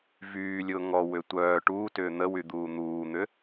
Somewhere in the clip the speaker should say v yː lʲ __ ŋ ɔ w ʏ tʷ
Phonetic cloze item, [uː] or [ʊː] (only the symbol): ʊː